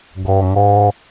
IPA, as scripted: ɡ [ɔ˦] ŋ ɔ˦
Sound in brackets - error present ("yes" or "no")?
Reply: yes